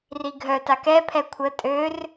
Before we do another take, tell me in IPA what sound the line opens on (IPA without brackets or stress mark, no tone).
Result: r